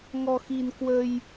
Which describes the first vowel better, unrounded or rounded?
rounded